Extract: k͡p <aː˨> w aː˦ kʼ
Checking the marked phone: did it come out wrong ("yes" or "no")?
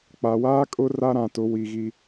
yes